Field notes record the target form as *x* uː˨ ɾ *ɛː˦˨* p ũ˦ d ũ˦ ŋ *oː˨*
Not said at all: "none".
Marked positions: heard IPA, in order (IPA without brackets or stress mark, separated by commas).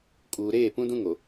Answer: kʼ, eː˦˨, o˨